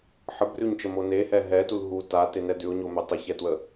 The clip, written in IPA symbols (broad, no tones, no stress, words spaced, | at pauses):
ħəbrʉɲt͡ʃəmo nehɛ ɦɛtul ɦu tatenɛ dʉʊ̯ɲomø tˤəçɛtwə